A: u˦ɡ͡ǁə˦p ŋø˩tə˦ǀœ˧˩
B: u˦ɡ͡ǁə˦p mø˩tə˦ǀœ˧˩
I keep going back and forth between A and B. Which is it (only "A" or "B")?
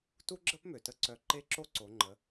B